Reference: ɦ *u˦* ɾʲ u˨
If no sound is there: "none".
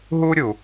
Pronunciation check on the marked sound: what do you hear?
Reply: u˦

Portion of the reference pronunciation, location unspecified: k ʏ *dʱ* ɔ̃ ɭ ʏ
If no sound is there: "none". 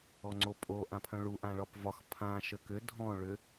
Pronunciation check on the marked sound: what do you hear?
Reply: dʱ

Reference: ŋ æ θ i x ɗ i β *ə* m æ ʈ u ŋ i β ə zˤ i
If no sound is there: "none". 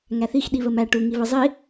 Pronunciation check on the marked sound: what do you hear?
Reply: ə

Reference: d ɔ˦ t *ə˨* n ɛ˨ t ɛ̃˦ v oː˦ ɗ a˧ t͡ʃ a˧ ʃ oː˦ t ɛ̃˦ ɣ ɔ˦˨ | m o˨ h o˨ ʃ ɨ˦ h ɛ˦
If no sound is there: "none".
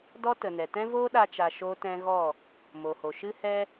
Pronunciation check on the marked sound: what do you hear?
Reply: ə˨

